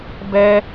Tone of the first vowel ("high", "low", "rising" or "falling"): high